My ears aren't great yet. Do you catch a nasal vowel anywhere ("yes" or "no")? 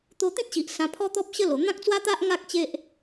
yes